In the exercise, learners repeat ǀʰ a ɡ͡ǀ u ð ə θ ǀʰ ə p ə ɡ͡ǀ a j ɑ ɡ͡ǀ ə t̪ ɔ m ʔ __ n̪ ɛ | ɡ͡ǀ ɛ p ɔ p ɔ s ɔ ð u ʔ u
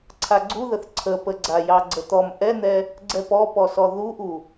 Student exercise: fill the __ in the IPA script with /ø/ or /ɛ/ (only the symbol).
ɛ